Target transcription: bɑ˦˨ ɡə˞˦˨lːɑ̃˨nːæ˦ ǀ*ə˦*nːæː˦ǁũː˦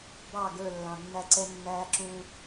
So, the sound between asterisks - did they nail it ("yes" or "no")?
no